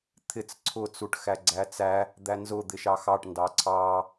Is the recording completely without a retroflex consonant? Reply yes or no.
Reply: no